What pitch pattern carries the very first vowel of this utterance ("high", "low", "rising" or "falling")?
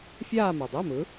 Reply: falling